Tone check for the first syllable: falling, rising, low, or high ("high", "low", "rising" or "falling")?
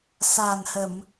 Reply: low